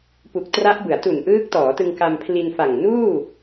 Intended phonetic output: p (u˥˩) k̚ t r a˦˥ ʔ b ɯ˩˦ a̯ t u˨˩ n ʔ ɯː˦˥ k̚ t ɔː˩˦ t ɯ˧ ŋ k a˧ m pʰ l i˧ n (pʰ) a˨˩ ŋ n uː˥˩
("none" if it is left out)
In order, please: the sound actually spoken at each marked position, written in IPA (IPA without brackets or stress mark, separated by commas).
u˨˩, f